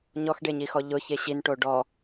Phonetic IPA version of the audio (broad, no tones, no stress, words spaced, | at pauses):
ɲɔxɖeɲixɔ ʎʊçe ɕinʈo ɖɔ